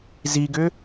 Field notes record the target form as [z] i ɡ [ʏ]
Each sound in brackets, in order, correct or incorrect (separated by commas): correct, correct